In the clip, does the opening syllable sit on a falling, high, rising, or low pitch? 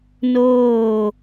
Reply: falling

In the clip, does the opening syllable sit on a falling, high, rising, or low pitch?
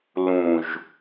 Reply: low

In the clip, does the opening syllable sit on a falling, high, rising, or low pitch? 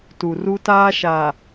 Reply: low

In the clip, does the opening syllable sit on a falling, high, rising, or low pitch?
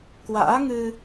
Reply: rising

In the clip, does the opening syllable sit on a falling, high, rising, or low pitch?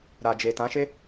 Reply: low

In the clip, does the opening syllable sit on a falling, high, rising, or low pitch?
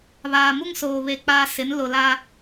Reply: low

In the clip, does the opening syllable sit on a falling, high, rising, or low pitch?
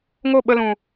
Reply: falling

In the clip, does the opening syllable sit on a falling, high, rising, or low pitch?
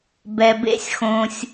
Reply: low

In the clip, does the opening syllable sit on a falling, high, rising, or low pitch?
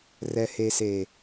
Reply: low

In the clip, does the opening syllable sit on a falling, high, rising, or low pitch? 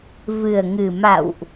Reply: low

